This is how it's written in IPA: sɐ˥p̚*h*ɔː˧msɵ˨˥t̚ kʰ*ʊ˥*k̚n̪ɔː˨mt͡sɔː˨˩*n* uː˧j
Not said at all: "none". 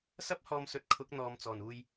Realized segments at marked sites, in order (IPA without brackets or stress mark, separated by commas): h, ʊ˨˥, n